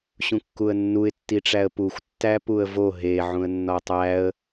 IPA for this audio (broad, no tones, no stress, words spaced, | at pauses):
ɕũkːuə̯nːuɪ̯ tːiʈ͡ʂæə̯puxʷ tːæpuə̯vo ɦe ʕũə̯nːɒtˤæə̯